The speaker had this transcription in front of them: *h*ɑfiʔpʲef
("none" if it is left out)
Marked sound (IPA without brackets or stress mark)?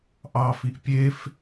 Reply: ʔ